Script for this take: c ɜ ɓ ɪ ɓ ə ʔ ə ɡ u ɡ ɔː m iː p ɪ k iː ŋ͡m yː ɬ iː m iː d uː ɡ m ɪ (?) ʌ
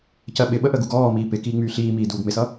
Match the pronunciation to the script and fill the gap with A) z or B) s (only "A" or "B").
B